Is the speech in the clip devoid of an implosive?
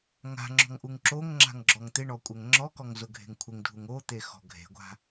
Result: yes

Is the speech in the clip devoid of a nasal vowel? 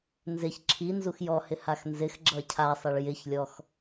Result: yes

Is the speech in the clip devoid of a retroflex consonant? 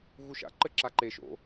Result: yes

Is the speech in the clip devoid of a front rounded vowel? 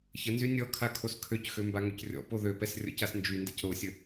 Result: no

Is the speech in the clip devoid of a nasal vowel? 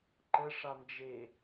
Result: yes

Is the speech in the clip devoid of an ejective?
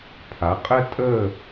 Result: no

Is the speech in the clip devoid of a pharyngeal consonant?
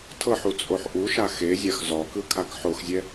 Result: no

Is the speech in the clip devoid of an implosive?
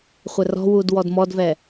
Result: yes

